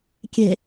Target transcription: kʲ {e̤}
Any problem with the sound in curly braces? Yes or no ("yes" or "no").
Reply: no